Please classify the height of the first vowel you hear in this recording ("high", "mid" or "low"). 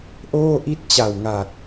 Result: mid